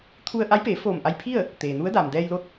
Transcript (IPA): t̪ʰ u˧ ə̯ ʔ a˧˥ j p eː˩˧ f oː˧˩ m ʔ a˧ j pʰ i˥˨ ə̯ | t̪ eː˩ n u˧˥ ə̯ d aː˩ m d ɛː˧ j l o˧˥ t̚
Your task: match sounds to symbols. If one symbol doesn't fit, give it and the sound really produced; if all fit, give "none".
none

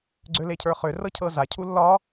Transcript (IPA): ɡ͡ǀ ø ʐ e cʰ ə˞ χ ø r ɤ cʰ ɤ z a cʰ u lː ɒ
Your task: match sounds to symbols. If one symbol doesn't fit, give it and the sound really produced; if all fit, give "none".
ʐ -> l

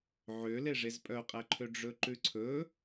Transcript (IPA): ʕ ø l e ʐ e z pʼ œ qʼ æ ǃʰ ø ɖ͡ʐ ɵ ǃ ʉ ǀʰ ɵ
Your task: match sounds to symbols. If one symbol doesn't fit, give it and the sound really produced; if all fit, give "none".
none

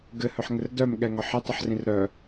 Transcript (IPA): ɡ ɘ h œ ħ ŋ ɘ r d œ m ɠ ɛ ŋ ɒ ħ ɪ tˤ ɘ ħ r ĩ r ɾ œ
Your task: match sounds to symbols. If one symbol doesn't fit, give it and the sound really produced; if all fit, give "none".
none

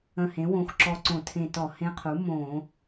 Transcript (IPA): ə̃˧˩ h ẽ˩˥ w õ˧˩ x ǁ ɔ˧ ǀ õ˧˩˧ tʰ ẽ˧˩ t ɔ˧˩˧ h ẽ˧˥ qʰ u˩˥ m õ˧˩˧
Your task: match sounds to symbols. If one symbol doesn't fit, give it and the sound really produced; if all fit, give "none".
none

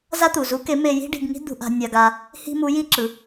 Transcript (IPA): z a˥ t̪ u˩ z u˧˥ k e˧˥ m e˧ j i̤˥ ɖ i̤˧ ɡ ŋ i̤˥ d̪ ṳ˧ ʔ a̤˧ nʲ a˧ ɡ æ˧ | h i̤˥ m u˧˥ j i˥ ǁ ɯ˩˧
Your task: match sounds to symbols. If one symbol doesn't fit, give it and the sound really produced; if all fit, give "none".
æ˧ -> a˧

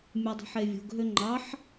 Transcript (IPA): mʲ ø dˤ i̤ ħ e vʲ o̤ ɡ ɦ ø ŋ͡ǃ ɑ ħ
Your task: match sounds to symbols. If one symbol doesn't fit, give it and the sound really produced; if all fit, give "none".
none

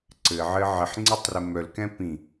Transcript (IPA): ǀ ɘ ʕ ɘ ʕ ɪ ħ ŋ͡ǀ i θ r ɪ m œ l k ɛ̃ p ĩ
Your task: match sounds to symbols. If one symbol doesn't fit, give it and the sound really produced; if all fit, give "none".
θ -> tˤ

